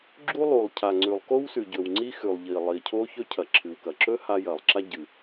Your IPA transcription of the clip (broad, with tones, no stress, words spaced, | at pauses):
ɡ͡ǁu˥ lˠu˩lˠcʰa˩ ŋ͡ǀʉ˩lˠko˥wsʉ˩ɟɵ˩w ŋ͡ǀi˥xʉ˩lˠʎi˩lˠi˩ cʰo˥çɵ˥ cʰɐ˩ǁʰɨ˩wkɐ˩ǁɵ˥ ha˥ jɐ˩lˠ ǁa˥ɟɨ˩